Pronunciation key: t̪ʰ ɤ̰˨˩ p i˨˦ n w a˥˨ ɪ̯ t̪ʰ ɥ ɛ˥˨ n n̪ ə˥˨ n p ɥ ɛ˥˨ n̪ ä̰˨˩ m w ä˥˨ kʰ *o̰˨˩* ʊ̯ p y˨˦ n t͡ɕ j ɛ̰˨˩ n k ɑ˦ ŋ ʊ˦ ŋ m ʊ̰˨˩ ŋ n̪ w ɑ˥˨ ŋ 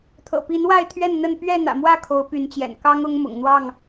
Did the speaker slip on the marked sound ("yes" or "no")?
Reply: yes